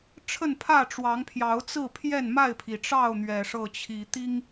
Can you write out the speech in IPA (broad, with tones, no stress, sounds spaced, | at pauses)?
ʈ͡ʂʰ ə˥˨ n pʰ ä˥˨ ʈ͡ʂ w ɑ˨˦ ŋ pʰ j ɑ˨˦ ʊ̯ t͡s ɹ̩˥˨ pʰ j ɛ˥˨ n m a˥˨ ɪ̯ pʰ i˩ ʈ͡ʂ ɑ˥˨ ʊ̯ n̪ ɥ ɛ˨˩ ʂ ɤ˥˨ t͡ɕʰ i˨˩ t̪ i˦ ŋ